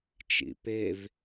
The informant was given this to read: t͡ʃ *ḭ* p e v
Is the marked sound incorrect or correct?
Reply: correct